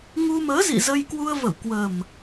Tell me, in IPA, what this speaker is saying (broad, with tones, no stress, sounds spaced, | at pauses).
ŋ u˧ m əː˨˦ z ḭ˧˨ z ə˧ j k w u˧ ə̯ v ə˧˩ w k w ə˨˩ m